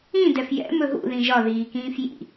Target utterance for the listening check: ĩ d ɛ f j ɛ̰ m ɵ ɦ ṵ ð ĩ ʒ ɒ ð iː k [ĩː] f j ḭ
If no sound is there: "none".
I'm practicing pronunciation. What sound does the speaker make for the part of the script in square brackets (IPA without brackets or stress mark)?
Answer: ĩː